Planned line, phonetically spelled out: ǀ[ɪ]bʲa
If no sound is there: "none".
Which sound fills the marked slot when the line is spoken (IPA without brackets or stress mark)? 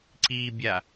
i